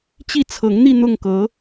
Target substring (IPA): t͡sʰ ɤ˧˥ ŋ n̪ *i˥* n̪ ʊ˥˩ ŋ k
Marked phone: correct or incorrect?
incorrect